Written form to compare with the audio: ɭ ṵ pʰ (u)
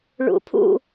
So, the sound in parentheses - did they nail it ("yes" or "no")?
no